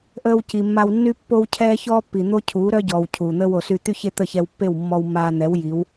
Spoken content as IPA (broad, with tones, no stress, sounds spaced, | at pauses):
ʔ əː˧ w c i˨ mː a˧ w nː y˦ pː o˦ w cʰ ɛː˦ ç ɔː˦ pː i˨ n̪ o˦ cʰ uː˨˦ ɾ œ˦ ɟ ɔː˨ w cʰ uː˨ n̪ əː˧ w o˨ s y˧ t̪ y˦ ç e˦ t̪ ə˦˨ ç ɛ˧ w pː e˦˨ w mː ɔ˧ w mː aː˧ n̪ ɛ˨˦ w j i˨˦ w